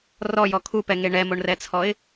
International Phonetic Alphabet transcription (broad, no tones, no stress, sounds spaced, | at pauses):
r ɔ j ɔ kʰ u p ɛ ŋ e ɳ ɛ m o ɳ r ɛ t͡sʰ ɔ ɪ̯